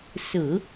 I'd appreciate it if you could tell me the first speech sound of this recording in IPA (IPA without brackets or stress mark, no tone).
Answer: s